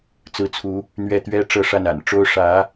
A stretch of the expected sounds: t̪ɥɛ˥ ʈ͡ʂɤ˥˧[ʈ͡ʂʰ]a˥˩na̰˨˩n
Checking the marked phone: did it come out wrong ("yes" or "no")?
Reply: yes